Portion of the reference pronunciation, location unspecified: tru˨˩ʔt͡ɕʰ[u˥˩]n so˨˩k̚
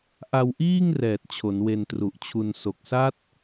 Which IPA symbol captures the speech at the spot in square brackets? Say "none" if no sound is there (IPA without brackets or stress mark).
u˧